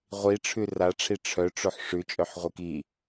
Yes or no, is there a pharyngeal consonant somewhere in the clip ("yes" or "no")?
yes